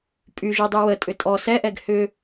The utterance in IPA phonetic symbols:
pʼyʒudˤy wətʼʏ tʼɔ sɛʔɛɡ hʏ

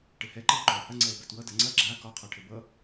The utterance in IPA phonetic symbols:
ʈɘhɛ ǃeo̯ǃɒo̯hɐ ŋ͡ǀɛo̯bɛtwʌ dɐŋ͡ǀɐ ɡ͡ǁa kɒ qʰɒʈʰɘbʌ

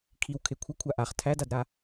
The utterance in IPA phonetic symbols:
kʰiw kʰekʷʰʌkʷʰa ʔaχ tʰædadɾa

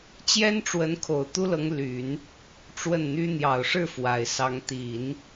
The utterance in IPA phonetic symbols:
t͡ɕjɛ˥nʈ͡ʂwə˧˥nkʰo˨˩ʊ̯ t̪u˥lɤ˧˥ŋ ly˨˩˦n | ʈ͡ʂwə˥˩nn̪y˥ n̪jɑ˨˩ʊ̯ʂɻ̩˥˩ fwa˨˩ɪ̯sɑ˧˥ŋ t̪i˨˩˦n

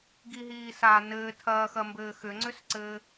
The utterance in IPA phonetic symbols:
ɡiɦiː sa nɘː tʰɐːxɐmbɘː xʏŋ͡ǀʏsǀɘː

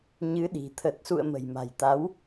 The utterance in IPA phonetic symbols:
ɲɨ˨˦ɗi̤˨˩ t̪ʰə˨˩t̚sṵ˧˨ə̯ mə̤˨˩jma̤˨˩jt̪a˨˦w

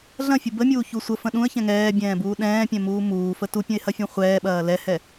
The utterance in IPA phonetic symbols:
ɮɐ̃fʲu bəmʲuːçu sʷəfə̃ ɗũə̯çɛ̃ ŋɛːbʲɛ̃ːbuː ɗɛ̃ːpʲɛ̃muː muːfə tupʲə̃ɪ̯hɐfʲũ χʷɛːɓɐː lɛhɛ

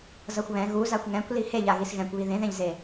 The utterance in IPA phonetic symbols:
zʌxʷβɛ̃ ɣuzaxʷ ŋɛ̃kʷli heʎa ɣisɣɛ̃kʷ βiðẽðẽʎze

